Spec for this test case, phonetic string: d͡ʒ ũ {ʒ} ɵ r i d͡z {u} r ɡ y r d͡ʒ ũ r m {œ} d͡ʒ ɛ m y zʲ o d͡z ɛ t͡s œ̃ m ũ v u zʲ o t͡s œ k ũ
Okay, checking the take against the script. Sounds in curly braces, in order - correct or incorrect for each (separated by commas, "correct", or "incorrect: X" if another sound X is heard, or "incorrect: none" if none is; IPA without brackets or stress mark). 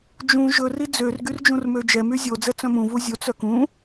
correct, incorrect: ø, incorrect: ø